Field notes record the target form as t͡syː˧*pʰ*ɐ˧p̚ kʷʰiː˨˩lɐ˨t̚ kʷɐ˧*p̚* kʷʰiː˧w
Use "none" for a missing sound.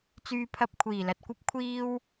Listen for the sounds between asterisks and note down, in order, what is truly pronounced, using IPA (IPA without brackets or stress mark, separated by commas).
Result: pʰ, p̚